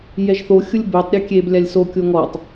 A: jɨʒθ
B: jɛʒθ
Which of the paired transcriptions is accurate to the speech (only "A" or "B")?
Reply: B